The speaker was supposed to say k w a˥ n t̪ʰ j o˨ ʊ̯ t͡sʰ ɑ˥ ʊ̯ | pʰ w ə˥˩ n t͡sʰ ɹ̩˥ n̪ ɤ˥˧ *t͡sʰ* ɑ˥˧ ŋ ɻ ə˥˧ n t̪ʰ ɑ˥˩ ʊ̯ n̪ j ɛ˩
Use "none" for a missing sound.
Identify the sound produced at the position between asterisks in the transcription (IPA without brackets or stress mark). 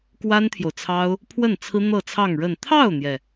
t͡sʰ